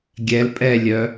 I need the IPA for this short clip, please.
ɡʲ ɛ l pʼ ɛ lʲ œ

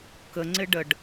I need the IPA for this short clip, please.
k ə ŋ͡ǀ ɪ ɖ ə ɖ

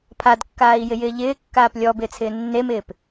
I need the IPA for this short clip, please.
pʰ a d kː aː i̯ j ɪ j ɪː ʎ ɪː kː aː p lʲ ɔ b ɪː t͡sʰ ɪː nː e m ɪː p

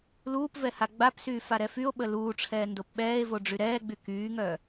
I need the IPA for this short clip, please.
l uː p v ɛ h a ɡ͡b a p s yː f a ɾ ɛ f y o̯ ɓ ə l uː ʈ͡ʂʰ ɛː n d o p ɓ ɛː e̯ v o ɖ͡ʐ y ɾ ɛː ɡ͡b y k yː ŋ œ

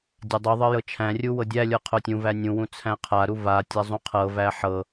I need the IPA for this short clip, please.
dʲ a dˤ u ðˤ ɤ j ɤ t͡ʃʰ æ̃ rʲ u w ɤ dʲ æ lʲ ɤ qʰ o tʲ ũ v æ nʲ ũ w ũ t͡sʰ æ̃ qʰ a ɾ u v a tʲ a zˤ ũ qʰ ɤ v æ ħ ɤ

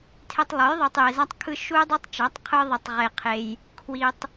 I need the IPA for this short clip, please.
tʰ e˧ tˤ lˠ o˨˦ j ðˤ ɯ˨ tˤ j e˨ z a˧ tˤ kʰ ɯ˧ ʃ u˦ j dˤ ɯ˦ tˤ t͡ʃ ʌ˨˦ tˤ qʰ ɯ˦ ðˤ e˧ tˤ ʁ e˧ qʰ e˧ j | kʰ w i˧ tˤ

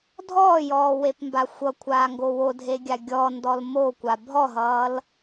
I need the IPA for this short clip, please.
dʱ ɔː j ɔː w e p m b a xʷ ʌ kʷʰ aː ŋ ɡ o w o dʱ e ɡʲ a ɡʲ ɔ n d ɔ l m o kʷ a bʱ ɔ ɦ ʌː l

